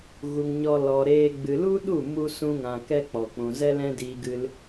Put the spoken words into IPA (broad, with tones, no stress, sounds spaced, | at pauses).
ɣ u˨ ŋ ɲ ɔ˧ l ɔ˨ ɾ eː˧ ɡ͡b ɨ˨ l u˦ ɗ u˦˨ m u˧ s ũ˦ ŋ ã˧ k ɛ˦ k͡p ɔ˨ k͡p ũ˨ z ɛ˦ l ɛ̃˦ d iː˧ ɡ ɨ˧ l